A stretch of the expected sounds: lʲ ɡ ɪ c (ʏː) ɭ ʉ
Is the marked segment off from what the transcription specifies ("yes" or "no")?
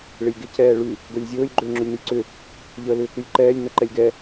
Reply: yes